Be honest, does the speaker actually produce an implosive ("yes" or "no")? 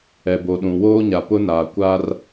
yes